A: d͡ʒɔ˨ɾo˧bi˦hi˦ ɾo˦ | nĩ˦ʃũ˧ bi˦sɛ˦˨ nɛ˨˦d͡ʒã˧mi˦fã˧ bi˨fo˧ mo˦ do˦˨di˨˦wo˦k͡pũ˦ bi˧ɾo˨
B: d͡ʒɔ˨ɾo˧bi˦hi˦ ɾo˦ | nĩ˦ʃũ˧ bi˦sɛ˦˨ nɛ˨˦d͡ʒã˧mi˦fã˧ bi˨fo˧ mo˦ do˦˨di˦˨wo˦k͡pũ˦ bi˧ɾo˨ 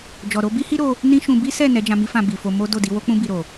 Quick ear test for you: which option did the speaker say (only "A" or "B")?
A